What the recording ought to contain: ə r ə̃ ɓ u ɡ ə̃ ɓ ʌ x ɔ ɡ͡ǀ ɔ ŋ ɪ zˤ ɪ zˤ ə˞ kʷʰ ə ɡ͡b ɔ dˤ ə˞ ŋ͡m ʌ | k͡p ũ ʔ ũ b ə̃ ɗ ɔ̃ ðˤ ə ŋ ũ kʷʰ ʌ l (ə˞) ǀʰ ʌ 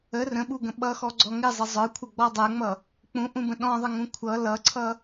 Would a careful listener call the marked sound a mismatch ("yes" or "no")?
yes